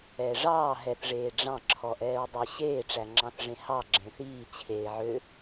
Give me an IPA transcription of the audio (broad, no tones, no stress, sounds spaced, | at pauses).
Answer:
ɛː ʐ ɑː ɦ ɛ θ ʐ eː ɖ͡ʐ ɑ̃ ǁʰ ɔ ʔ ɛː ɹ dˤ y ɕ eː ʈ͡ʂ æ ŋ͡ǁ ɑ̃ θ ʐ ẽ h ɑ ɡ͡ǁ ẽ θ iː t͡ɕʰ eː ʕ ø